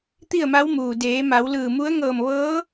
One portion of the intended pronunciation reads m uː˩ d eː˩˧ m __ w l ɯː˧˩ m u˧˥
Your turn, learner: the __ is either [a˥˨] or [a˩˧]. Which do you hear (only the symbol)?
a˩˧